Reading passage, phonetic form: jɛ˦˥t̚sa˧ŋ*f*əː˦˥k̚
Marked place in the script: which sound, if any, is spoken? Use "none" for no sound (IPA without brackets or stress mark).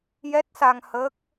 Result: h